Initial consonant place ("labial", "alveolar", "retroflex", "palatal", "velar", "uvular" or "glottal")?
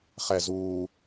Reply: uvular